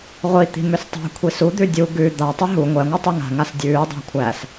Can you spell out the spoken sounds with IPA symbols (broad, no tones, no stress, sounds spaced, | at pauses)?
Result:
ʁʷ i t̪ i̤ m ʏ s tˤ æ̤ kʷʰ i s u d̪ ʉ dʲ u ɡ ʉ d̪ a tˤ ʏ ɦ u ŋʷ ɛ ŋʷ ɤ tˤ i ŋ a̤ ŋ a s dʲ ʉː dˤ æ̤ kʷʰ æ s